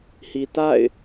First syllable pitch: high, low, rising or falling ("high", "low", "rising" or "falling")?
low